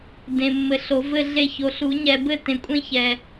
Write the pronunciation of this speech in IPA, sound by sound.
d ẽ˨ mː ɘ˨˩˦ ɬ o˨˩˦ v ɘ˥˨ ɮ e˥˨ ç o˨˦ ɬ u˨˩˦ ɲ ɛ˨ b ɘ˥˨ t ẽ˨ kʷʼ ẽ˥˨ ç ɛ˨

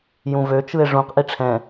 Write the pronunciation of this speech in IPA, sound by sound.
j ũ v ø t͡ʃ ɯ e̯ ʐ ũ q ʔ i ʈ͡ʂʰ ɛ̃

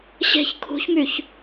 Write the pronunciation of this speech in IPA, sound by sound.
ɕ e̤ ç kʰ ṳ ç m y ç

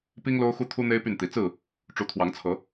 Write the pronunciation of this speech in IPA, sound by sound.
p i˦ ŋ l o˦ ʊ̯ x u˦ t̪ʰ u˦ n̪ e˦ ɪ̯ p y˥˨ n t̪ i˨˦ t͡s ɹ̩˥˨ | ʈ͡ʂ u˨˦ t̪ʰ w ɑ˨˦ ŋ t͡sʰ ɤ˨˦

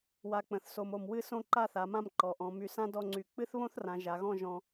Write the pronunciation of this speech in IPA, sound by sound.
w a˧ k͡p ə̃˩˧ θ s o˧ m o˧˩ m w ɨ˥˧ s õ˥˧ ǃ a˥˧ θ a˩˧ m ã˥˧ m ǃ ɔ˩˧ ʔ ɔ̃˩˧ m y˧ s ã˥ d ɔ˥˧ ŋ͡ǀ y˧˩ k͡p ɨ˥ θ β õ˥ θ r ã˩˧ ʒ a˩˧ ɣ ɔ̃˥˧ ʒ ɔ̃˧

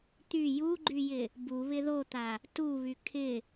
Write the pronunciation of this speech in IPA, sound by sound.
t̪ y j u ɡ͡ǃ y j ɪ | b u β ɪ ð o t̪ a | t u β y kʰ ɪ

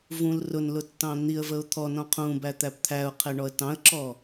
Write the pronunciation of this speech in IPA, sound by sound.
v ũ l r ʊ n l ʊ tː ɑ̃ n̪ i ə̯ v ə ʊ̯ t̪ʰ ɔ n ɔ̃ qʰ ũ b æ t̪ æ p t̪ʰ æ ʊ̯ qʰ ɛ ɳ ɔ ə̯ t ɑ̃ ə̯ ǁ ɔ

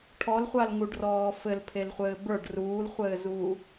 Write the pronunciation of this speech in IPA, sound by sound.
ʈʰ ɔ l χʷ a l ŋ u ɖ r ɔː f ɘ l pʰ e l χʷ ɘː b ə˞ ɖ r uː l χʷ ɘː z uː

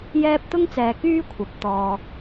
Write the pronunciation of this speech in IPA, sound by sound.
j ɛː˧ p̚ t̪ ʊ˥ ŋ t͡s ɛː˨ k yː˥ kʷʰ ɐ˨ p̚ t̪ ɔː˨

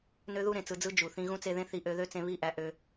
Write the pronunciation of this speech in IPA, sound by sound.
n ø˦ ð u˦ ɾ ẽ˨ t͡s ɯ˧ d͡z ɯ˦ d͡ʒ u˨ θ ĩ˧ ɣ ũ˦ t͡s e˧ ð ẽ˦ θ i˧ ʔ ø˧ ð ø˦ t͡s ẽ˧ β i˦˨ ʔ æ˧ ʔ ø˧

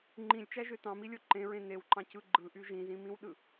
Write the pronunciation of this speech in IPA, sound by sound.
ŋ͡ǃ ĩ lʲ t͡ʃ æ ʒ ø t ɑ̃ m i lʲ o ǃ ẽ ɹ ẽ n e w ǃ ɑ̃ c ɯ ɡ͡ǃ ɯ ʔ y ʒ ĩ z ĩ m ĩ w ɗ ɯ

